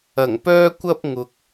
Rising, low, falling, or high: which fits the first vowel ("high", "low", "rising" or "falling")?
low